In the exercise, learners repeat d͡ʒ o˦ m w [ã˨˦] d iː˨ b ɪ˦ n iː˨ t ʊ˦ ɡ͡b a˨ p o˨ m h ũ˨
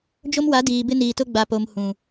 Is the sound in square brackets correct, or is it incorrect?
incorrect